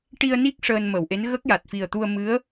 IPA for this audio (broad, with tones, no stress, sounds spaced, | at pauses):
ʈ i˧ ə̯ n i˦˥ k̚ ʂ əː˧ n m ə˨˩˨ w ʔ e˧˥ n ɣ ə˦˥ k̚ j a˨˩ t̚ f i˨˩ ə̯ t̪ u˧ ə̯ m ɨ˧˥ ə̯